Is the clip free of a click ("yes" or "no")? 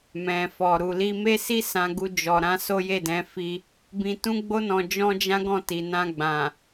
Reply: yes